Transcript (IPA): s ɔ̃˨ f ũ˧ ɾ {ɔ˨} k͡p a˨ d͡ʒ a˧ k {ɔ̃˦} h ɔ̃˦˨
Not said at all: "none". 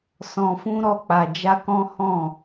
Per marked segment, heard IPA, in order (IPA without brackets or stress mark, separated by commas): ɔ˧, ɔ̃˦